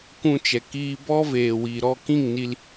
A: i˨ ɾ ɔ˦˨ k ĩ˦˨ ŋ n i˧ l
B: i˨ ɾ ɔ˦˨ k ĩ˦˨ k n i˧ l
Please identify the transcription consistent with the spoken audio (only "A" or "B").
A